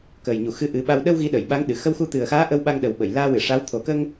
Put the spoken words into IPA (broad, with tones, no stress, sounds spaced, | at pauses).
k əː˨˩ j ɲ u˨˩˨ x ɨ˧˥ ʔ ɨ˨˩˦ ɓ a˧ w ɗ ə˧ w ɣ i˧˥ ɗ ə˨˩˨ j ɓ a˧˥ ŋ ɗ ɨ˨˩˨ x ə˧ w x u˧ t̪ ɨ˨˩ ə̯ x aː˧˥ ʔ ə˧ w ɓ a˧ ŋ ɗ ə˨˩ w ɓ ə˨˩˨ j l aː˧ w ɨ˨˩˨ ʂ a˧˥ w t̪ʰ o˨˩ k ə˧ ŋ